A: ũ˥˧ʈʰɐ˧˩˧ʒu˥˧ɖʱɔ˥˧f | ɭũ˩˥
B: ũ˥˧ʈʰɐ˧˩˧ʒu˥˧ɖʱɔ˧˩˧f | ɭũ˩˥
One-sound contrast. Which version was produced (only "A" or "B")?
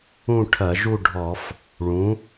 B